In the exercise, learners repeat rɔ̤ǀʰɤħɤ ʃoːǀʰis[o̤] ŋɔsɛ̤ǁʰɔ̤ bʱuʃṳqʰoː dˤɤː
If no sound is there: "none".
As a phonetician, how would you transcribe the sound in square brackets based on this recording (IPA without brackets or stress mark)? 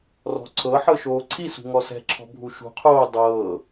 ṳ